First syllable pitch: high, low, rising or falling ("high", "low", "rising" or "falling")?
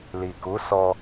low